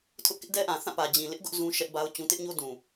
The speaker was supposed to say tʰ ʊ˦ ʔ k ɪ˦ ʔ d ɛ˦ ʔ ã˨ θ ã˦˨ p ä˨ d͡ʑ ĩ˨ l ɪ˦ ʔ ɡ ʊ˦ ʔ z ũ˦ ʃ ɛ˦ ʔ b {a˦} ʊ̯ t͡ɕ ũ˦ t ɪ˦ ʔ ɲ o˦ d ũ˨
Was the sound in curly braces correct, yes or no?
yes